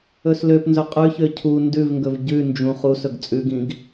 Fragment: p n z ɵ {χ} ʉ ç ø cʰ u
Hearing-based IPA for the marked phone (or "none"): qʼ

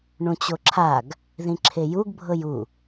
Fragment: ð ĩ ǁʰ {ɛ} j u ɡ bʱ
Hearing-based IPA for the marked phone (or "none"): e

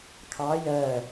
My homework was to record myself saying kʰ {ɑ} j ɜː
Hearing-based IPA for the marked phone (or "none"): ɑ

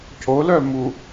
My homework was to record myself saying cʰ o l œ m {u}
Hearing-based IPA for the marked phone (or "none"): u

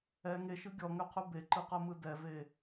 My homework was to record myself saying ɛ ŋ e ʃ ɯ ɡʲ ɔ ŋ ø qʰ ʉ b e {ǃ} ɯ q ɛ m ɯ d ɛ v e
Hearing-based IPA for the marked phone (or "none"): ǃ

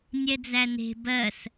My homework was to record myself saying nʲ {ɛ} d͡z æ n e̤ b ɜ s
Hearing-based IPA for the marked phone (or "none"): ɛ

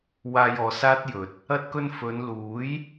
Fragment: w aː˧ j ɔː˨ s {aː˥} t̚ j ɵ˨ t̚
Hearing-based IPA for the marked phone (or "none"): aː˥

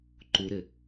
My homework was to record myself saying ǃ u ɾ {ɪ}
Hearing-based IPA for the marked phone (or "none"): ɪ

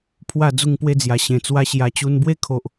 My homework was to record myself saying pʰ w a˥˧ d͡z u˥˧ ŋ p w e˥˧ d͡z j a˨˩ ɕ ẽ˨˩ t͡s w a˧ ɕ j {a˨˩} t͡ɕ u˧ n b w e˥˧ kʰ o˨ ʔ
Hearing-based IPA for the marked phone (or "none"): a˨˩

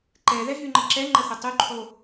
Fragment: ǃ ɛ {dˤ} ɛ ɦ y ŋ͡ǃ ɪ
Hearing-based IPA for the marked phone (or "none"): ð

